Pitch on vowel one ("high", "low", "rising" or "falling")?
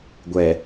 low